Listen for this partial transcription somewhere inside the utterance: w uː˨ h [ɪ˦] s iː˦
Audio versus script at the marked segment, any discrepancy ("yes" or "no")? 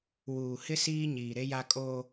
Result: no